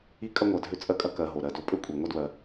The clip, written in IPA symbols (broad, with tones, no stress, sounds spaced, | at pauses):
i˦ kʼ ɐ˥ ŋʷ ɐ˨ dʱ ø˦ t͡sʼ ɜ˦ kʼ ɐ˦ k ɜ˨ ɦ o˩ ɾ ɜ˨ d o˦ pʼ ø˥ kʷʼ i˩ ŋʷ ɐ˥ d w ɜ˩